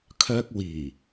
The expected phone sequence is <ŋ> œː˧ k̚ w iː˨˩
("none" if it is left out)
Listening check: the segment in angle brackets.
kʰ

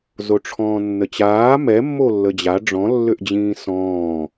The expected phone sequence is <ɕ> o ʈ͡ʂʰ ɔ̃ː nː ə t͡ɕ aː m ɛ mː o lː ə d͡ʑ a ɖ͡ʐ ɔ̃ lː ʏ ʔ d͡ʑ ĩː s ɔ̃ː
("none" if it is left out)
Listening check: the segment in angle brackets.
z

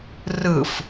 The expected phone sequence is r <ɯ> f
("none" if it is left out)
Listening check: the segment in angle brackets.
ɯ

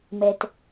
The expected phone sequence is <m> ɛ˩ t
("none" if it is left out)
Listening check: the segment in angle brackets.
m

